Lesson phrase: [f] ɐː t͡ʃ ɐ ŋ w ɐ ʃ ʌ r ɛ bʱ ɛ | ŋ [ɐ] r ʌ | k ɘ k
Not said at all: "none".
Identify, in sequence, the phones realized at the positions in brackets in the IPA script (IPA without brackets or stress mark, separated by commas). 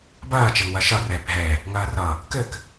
b, ɐː